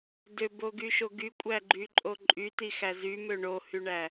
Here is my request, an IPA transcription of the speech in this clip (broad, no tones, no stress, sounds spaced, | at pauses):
d ø b o ɡ y ʃ o ɡ y kʷʼ æ ɡ͡ǃ y ǃʼ o ǃʼ y t i x æ z y m ø ɳ o h y ɳ æ